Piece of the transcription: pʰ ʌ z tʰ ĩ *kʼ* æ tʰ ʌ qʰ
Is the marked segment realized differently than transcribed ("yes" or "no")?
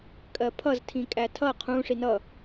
no